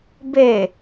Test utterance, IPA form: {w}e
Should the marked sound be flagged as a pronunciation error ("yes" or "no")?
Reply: yes